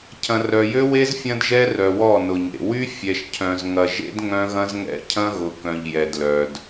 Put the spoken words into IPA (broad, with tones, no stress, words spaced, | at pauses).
cʰɐ̃˨rœ˨jø˦we˦z fʲɐ̃˦dʒɛ˦rœ˨wɔ˦˨ nʊ˨ɲḛ˨ wy˦ fʲɛ˨ʃcʰœ̃˨zŋɐ˨ʒḛ˦d ŋœ̃˦ɣɐ̃˦zŋɛ̰˦ cʰɐ̃˦ɣʊ˨ kœ̃˨ʎjɛ˨dlœ˨d